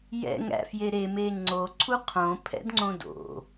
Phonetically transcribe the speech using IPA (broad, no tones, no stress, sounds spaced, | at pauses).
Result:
j ɛ̰ ŋ æ̰ f j e ɾ e m e ŋ͡ǀ o ǀʰ u qʰ õ pʰ ɛ̰ d ŋ͡ǀ õ d o̰